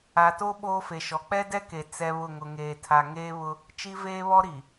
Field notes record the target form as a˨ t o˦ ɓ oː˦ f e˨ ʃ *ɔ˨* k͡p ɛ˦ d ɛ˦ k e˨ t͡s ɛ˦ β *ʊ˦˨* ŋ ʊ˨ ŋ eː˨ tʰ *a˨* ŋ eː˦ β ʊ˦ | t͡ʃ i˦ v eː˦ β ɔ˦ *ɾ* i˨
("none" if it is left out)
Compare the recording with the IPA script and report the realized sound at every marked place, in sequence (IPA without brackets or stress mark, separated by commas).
ɔ˨, ʊ˦˨, a˨, ɾ